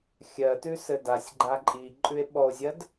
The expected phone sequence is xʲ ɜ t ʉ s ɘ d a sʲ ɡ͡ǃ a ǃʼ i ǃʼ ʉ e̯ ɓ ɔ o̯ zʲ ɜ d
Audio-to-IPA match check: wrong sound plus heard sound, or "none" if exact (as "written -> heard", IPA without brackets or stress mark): none